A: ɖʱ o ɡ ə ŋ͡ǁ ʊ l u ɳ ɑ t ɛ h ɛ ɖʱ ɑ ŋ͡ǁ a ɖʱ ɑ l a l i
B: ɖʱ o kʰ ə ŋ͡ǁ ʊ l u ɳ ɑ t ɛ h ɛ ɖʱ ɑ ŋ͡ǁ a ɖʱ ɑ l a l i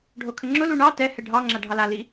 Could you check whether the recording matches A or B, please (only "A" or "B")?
B